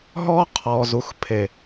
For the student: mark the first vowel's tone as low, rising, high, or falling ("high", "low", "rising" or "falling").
high